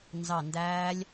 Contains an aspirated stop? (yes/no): no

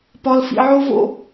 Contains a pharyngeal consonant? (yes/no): yes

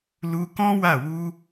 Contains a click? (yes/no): no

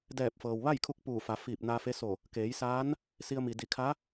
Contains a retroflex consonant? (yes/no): no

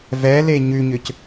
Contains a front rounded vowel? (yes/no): yes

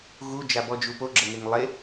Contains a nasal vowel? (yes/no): no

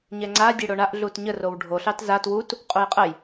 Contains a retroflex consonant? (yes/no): yes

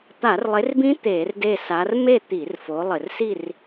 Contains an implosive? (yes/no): no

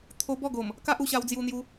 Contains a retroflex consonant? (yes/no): no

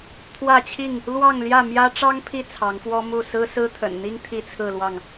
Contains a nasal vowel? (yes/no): no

